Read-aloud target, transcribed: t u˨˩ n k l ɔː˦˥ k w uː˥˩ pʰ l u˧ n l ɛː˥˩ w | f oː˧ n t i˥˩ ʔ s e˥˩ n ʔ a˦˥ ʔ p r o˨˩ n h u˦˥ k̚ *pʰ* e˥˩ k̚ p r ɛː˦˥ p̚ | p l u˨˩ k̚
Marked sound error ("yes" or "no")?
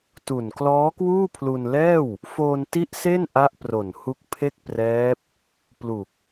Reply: no